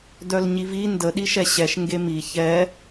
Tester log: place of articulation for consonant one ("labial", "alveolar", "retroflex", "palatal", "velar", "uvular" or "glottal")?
alveolar